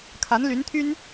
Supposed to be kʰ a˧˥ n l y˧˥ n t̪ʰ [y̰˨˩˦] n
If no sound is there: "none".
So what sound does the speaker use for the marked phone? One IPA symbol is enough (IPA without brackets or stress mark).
y˥